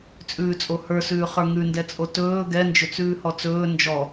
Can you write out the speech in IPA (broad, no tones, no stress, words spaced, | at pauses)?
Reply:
t͡sʼʉːt͡sʼohə˞sʉː χə˞ŋʉndɛt͡sʼo tɵː ɡɛnd͡ʒɵt͡sʉː hɔt͡sɵː nd͡ʒɔ